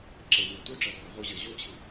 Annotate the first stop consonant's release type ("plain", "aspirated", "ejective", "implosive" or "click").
click